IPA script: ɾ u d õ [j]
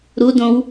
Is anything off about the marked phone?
yes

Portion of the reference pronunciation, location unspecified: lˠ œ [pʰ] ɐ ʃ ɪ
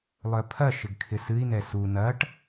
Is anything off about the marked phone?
no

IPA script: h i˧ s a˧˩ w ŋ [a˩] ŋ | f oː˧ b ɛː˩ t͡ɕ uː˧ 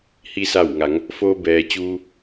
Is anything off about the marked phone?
yes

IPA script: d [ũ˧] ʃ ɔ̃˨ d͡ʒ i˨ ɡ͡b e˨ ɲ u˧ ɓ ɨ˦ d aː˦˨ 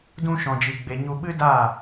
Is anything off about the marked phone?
no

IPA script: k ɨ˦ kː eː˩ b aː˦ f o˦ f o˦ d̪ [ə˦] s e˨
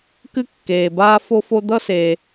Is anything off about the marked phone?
yes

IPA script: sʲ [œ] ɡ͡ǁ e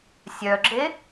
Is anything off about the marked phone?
no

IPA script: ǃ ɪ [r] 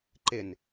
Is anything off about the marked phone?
yes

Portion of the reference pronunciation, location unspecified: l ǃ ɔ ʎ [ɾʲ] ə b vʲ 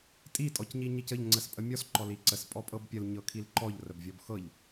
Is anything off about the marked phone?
yes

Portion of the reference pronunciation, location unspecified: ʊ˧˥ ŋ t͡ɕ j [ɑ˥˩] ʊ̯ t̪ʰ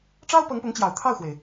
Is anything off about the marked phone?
yes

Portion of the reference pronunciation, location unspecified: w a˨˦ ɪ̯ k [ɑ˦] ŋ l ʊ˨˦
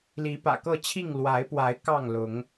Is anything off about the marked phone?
yes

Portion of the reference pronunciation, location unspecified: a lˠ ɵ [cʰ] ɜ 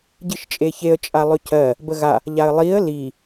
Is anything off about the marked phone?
no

